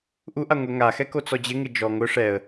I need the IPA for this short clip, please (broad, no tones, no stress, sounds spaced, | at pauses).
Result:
ʔ u ʔ a ŋʷ ɛ ŋ a x ɛ k o t͡s ɔ d͡ʑ ɪ ŋ ɪ d͡ʒ ɔ ŋ ʊ ʂ ɛ ə̯